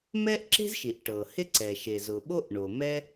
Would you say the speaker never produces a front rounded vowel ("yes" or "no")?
yes